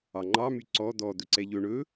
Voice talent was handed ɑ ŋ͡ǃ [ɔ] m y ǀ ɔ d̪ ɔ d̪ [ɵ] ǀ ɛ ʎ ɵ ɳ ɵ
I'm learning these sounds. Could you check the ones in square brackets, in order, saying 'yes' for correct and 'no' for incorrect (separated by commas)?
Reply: no, yes